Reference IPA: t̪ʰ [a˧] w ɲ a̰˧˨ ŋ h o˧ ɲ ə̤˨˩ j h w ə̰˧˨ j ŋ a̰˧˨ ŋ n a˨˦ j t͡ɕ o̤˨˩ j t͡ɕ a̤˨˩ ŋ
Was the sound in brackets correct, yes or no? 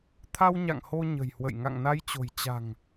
yes